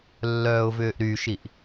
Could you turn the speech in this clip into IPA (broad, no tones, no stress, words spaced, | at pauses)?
lːœːʊ̯vʏːʔɾyʃiʔ